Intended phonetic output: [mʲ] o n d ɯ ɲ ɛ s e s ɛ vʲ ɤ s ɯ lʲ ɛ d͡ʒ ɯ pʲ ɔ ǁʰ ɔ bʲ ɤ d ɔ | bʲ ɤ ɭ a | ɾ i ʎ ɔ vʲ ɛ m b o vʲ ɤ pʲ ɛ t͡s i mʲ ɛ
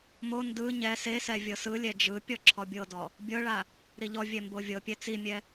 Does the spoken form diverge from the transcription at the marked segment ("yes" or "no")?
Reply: yes